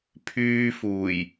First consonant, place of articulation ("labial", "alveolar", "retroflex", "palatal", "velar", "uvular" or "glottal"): labial